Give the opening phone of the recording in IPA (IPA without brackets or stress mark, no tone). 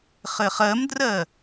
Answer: χ